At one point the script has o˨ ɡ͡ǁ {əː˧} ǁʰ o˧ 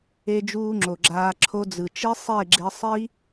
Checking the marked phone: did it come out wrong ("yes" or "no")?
yes